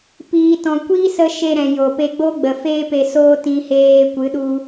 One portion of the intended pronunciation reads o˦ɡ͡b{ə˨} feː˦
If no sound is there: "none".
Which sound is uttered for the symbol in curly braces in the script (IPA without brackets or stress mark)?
ə˨